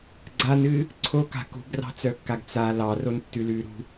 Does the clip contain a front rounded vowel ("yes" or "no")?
yes